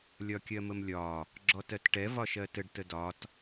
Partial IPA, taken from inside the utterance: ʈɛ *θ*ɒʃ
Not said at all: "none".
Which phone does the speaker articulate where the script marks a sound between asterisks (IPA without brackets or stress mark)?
v